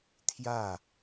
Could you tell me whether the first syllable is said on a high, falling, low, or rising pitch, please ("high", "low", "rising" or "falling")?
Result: falling